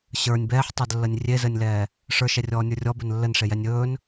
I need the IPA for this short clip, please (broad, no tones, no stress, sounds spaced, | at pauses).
ɕ ə˞ nʲ b ɛː ħ tˤ ɛ d lː ə nʲ rʲ e z ɘ nʲ l ɛː | ʂ ə˞ ʃ ɛ rʲ ɔː nʲ ə˞ rʲ ɔ b ɘ n lː ɘ n ʂ e j ɛ nʲ ɵː n